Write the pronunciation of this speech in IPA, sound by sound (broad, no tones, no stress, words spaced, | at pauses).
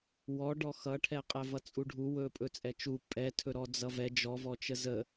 wɔɖɔ xʌʈʰɛqʼɛ vʌt͡sʼuɖʱu wɵ pʼɵt͡sʼɛt͡ʃu pʼɛtʰɵɾɔ d͡zʌvɛ d͡ʒɔvɔt͡ʃə zə